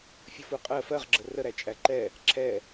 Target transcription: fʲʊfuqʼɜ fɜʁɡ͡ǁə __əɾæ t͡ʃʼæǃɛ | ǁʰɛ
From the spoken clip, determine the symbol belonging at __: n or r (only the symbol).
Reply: r